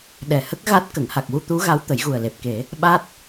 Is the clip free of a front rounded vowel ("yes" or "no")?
yes